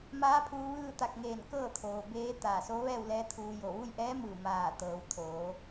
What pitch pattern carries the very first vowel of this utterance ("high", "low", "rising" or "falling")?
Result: rising